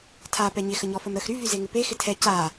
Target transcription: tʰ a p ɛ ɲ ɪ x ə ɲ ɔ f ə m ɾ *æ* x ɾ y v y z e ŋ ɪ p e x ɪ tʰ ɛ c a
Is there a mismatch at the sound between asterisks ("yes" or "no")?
yes